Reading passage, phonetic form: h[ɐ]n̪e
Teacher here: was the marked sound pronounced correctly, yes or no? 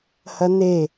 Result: yes